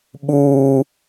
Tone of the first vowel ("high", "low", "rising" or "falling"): high